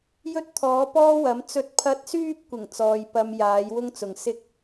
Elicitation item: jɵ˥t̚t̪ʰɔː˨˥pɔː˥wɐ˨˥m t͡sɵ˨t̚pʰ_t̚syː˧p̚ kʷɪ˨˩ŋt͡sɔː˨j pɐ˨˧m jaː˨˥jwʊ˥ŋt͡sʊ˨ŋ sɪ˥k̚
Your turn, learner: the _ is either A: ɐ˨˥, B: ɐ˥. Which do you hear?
A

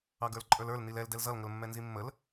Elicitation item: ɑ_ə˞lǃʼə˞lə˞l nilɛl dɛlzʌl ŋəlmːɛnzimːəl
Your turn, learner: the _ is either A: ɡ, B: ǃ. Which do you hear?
A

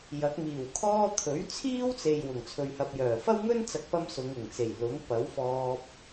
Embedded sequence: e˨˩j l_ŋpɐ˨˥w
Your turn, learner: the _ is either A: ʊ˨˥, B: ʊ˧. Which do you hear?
A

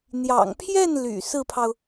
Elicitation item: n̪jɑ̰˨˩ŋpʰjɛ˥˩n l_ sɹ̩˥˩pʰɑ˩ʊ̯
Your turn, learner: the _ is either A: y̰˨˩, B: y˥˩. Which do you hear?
A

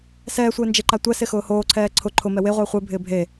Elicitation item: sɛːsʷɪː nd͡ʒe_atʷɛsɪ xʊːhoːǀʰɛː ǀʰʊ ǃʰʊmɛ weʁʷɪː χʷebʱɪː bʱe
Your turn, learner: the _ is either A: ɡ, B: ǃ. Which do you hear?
B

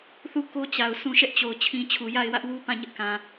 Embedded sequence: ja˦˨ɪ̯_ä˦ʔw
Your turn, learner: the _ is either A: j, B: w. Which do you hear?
B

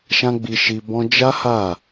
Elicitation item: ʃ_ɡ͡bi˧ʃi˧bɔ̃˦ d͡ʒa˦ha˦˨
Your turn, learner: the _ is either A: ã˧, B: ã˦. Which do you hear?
B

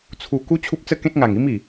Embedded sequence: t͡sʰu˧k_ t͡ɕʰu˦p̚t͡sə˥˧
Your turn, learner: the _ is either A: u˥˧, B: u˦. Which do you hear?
B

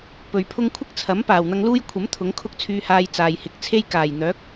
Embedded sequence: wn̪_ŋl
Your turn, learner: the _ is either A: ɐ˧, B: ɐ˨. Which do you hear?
A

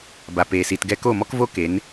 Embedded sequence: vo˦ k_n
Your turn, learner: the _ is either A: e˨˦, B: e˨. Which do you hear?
A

